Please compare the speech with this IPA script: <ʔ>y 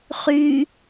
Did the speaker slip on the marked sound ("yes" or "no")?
yes